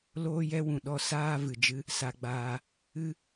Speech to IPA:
l oː˦ j ɛ˦ w ũ˨ ɗ ɔ˧ s aː˦ v ɨ˨ d͡ʒ ɨ˦ | s a˧ ɡ͡b aː˧ | ɨ˦

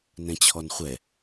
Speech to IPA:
n ɛ̃ t͡ɕʰ ɔ n χʷ ɛ

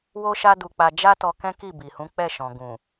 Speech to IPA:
w o˦ ʃ a˦ d u˧ k͡p a˧ d͡ʒ a˦ t ɔ˧ k ɛ̃˦ k i˦˨ b i˨ h ũ˨˦ k͡p ɛ˦˨ ʃ ɔ̃˨ ɡ ũ˨

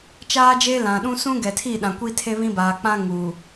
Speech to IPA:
t͡ʃ aː˦ d͡ʒ eː˦ l ã˨ ɗ ũ˦ s ũ˦ ɡ ɛ˨ tʰ i˦˨ ɗ ã˨ kʷ iː˦ tʰ e˦ β ĩ˦ b aː˨ k͡p ã˦ ŋ u˨

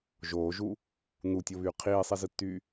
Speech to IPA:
ʒ oː ʒ uː | n u tʲ o β yː qʰ iː sˤ i z ɯ tː yː

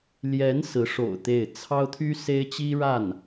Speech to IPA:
l j ɛ˧˥ n s ɹ̩˧˥ ʂ o̰˨˩ ʊ̯ t̪ e˥˩ ɪ̯ t͡sʰ ɑ˥ ʊ̯ t̪ʰ y˥ s e˥ ɪ̯ t͡ɕ i˥ ɻ a˥˩ n

